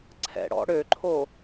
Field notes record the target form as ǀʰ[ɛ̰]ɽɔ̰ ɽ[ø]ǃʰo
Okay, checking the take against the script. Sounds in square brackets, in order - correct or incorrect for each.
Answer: correct, correct

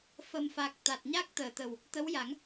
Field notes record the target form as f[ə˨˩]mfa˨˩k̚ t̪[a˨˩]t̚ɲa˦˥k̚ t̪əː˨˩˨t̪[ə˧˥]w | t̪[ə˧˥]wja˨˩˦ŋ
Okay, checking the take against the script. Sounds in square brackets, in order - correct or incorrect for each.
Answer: correct, correct, incorrect: ə˨˩, correct

